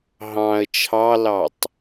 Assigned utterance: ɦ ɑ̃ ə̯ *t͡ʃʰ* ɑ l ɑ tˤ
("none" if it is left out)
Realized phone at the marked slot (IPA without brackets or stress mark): t͡ʃʰ